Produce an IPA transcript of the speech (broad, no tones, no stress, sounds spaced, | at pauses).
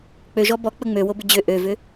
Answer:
k͡p ø ʒ ɔ b ɔ k͡p ə ŋ͡m ø w o b ʏ d͡ʑ ø ʔ ø v ʏ